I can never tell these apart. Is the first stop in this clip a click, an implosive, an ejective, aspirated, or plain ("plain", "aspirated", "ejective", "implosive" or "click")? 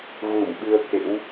implosive